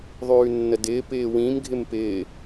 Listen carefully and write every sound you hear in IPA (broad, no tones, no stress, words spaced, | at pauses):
ðˤʉːnːədɪː pɪːwĩmɡʱɪm pɪː